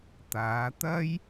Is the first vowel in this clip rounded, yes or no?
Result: no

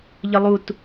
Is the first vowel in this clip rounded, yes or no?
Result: no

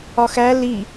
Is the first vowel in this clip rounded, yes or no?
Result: yes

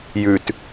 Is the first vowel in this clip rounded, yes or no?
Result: yes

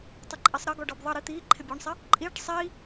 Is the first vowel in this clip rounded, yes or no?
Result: no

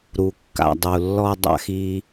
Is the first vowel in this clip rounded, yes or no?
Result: yes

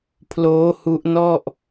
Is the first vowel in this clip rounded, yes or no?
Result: yes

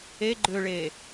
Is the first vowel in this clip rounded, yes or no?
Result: no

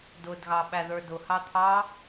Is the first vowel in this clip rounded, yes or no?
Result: yes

